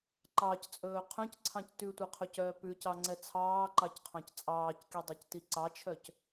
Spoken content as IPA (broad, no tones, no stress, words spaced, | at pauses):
ǃɑct͡sʼɵː qʰœ̃cǀʰɑ̃c tʉtʷɛqʰɵcœː pʉcɑŋ͡ǀɛ t͡sʰɑːǃɑcqʰɑ̃c t͡sʼɑːckidˤɑcti ǀɑt͡ʃʰœc